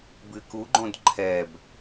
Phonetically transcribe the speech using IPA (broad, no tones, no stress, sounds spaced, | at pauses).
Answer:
b ɨ k u ɡ͡ǃ õ d ǃʰ ɛ b